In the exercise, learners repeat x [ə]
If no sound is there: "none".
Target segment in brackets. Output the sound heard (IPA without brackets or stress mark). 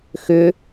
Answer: ʏ